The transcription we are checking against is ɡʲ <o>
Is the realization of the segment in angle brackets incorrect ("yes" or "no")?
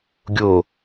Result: no